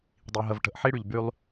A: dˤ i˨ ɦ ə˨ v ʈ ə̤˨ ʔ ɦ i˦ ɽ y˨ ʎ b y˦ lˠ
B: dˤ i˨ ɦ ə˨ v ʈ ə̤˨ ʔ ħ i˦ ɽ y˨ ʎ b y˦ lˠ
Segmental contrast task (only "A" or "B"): B